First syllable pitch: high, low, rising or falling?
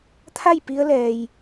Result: falling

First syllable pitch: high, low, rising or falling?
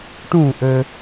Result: falling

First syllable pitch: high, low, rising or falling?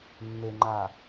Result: low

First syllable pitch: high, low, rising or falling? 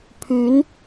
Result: rising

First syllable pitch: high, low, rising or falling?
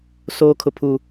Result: high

